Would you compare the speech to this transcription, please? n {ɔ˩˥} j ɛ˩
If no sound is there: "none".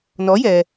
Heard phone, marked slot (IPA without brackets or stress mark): ɔ˩˥